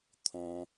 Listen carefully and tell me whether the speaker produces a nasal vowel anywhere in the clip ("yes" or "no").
yes